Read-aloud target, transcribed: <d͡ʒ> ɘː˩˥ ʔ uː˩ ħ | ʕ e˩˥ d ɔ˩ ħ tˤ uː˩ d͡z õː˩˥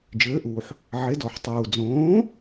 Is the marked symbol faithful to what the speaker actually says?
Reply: yes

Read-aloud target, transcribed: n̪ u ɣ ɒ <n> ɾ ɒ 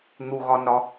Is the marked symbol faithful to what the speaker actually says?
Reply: yes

